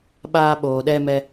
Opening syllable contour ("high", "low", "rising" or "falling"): high